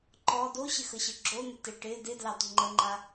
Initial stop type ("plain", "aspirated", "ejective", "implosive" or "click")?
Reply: click